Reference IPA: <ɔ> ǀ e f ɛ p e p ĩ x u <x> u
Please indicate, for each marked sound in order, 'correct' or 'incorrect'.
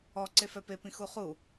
correct, incorrect

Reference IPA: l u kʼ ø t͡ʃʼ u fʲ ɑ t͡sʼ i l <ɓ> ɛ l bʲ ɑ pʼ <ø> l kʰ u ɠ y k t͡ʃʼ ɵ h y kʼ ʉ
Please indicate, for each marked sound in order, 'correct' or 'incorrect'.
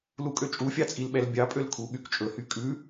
correct, correct

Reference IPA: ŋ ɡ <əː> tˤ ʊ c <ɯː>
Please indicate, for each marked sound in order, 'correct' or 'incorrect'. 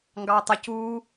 incorrect, incorrect

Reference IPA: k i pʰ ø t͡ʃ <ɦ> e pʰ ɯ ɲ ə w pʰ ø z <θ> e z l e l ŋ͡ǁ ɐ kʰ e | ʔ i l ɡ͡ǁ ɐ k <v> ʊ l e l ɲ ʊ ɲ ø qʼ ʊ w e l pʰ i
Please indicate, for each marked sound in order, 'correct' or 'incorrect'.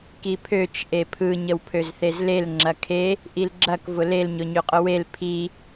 incorrect, correct, correct

